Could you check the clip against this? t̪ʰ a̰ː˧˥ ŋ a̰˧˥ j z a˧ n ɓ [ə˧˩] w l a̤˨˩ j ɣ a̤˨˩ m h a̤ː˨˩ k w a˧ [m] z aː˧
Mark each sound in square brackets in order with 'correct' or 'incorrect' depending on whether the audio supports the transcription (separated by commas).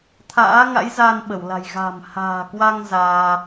correct, incorrect